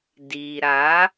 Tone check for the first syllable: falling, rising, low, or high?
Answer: low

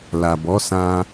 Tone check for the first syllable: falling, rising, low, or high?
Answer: low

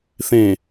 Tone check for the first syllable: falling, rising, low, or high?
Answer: low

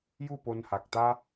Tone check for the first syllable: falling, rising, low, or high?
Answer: falling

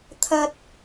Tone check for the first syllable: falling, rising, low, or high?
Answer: low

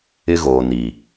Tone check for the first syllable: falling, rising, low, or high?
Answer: high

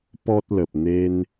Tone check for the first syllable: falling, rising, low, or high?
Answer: high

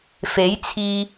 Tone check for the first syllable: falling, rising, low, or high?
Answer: rising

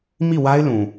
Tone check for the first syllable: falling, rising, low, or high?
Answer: falling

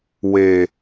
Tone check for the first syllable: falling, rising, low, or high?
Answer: low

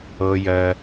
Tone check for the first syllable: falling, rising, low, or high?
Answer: low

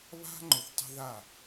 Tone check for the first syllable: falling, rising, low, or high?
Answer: high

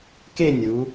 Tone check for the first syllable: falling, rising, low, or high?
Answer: falling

